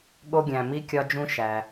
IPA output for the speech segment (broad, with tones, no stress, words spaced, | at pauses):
ɠo˧ɡʲæ̃˩mi˧ kʲɒ˧d͡ʒũ˧ ʃæ˩